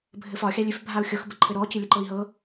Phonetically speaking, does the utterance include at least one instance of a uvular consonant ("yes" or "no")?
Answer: no